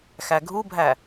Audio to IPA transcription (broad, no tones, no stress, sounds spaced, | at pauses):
x æ ɡʱ u bʱ æ